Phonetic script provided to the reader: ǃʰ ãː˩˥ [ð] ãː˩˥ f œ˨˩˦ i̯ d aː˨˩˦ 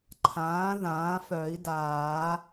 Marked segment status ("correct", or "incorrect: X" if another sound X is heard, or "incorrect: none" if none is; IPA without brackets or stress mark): correct